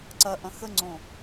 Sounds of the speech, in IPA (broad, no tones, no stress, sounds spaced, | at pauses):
ǀ ɐ ʔ ɐ̃ x ə ŋ͡ǀ õ